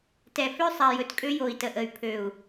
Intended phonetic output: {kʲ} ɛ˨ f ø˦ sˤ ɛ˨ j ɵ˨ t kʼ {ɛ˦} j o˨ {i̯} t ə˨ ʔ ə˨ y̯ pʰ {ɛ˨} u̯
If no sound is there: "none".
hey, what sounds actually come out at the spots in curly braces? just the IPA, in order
t, ø˦, i̯, ø˨

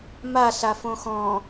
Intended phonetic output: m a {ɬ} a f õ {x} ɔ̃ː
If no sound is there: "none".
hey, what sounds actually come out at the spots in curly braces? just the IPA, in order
ɬ, x

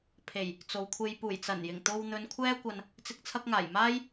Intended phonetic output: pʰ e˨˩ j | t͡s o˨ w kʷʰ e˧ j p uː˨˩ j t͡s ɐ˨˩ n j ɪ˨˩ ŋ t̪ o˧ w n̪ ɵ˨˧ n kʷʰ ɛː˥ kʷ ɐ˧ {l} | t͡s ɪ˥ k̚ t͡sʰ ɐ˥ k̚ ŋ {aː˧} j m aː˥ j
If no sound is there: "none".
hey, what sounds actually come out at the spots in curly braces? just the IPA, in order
n, aː˨˩

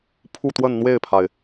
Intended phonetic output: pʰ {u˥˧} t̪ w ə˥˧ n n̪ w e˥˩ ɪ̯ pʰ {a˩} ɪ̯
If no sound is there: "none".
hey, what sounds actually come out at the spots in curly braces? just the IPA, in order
u˥˧, a˩

